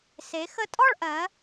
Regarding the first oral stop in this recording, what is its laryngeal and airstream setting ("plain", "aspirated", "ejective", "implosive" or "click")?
ejective